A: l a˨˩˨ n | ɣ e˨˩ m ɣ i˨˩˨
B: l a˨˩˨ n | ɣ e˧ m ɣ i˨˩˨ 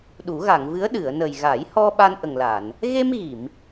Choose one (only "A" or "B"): B